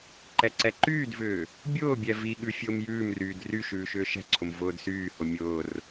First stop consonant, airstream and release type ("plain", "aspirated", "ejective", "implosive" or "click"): click